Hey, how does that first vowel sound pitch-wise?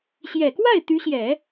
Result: low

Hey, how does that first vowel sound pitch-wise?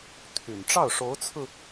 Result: low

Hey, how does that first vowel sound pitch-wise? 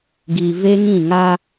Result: low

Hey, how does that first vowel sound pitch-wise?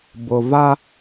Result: low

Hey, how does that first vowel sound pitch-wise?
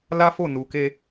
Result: high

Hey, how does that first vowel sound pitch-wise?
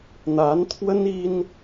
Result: rising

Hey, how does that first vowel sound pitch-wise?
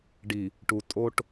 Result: low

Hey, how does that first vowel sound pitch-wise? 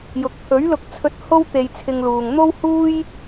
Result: low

